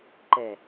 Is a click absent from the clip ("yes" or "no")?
no